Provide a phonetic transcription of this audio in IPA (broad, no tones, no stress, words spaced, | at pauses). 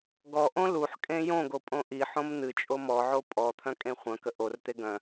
ɡɔʔõ luħ kʼẽjõɡo pʼõʔiħõm n̪ɨt͡ʃʼo mɔʕo pʼɔ t̪ʰœ̃kʼẽχʷœ̃kə ʔort̪e ɡœ̃